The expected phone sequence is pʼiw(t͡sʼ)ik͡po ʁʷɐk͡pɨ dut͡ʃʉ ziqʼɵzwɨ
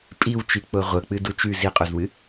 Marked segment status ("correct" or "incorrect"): incorrect